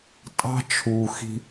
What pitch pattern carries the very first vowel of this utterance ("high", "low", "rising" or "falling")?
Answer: high